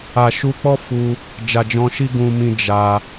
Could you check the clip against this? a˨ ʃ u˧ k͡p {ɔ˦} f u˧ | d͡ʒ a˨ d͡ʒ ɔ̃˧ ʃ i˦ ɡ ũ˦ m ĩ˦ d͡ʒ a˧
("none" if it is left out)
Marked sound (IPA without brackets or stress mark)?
ɔ˦